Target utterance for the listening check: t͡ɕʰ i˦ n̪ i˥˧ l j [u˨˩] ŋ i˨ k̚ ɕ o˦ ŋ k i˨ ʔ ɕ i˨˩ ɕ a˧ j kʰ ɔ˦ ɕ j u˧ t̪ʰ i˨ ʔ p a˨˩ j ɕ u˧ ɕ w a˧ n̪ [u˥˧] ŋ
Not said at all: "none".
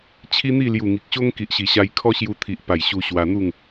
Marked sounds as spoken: u˨˩, u˥˧

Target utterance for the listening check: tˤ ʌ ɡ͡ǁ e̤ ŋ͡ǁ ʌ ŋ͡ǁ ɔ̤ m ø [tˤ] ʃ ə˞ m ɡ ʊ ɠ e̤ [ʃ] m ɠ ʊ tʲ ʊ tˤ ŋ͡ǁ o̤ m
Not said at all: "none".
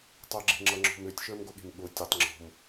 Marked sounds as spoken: tʲ, none

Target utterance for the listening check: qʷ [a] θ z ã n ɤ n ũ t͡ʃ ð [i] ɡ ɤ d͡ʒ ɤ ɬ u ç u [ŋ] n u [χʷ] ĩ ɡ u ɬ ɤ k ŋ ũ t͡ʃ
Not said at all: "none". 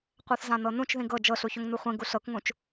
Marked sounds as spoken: a, ĩ, ŋ, χʷ

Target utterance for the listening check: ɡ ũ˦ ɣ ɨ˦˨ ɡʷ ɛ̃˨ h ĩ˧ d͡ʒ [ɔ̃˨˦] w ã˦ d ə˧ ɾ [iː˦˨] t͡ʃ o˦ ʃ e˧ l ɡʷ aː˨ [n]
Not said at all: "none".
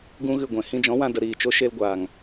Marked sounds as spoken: ɔ̃˨˦, iː˦˨, ŋ

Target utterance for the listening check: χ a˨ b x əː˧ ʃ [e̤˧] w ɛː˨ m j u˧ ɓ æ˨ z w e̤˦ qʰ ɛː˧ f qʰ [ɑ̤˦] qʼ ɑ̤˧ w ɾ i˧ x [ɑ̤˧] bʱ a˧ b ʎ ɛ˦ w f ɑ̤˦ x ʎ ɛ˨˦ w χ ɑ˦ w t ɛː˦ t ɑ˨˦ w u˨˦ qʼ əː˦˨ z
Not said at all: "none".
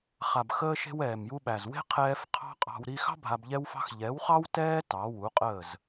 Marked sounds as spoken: e̤˧, ɑ̤˦, ɑ̤˦

